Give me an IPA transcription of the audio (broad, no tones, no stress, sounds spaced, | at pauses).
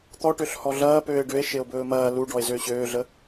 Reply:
t̪ ɔ ʈ ø ɬ h ɔ ɮ ɐː p øː e̯ ɖ ø e̯ ʃ e o̯ b ɵː m ɐː l u ɖ ɔ e̯ z ø ɕ øː ɮ ə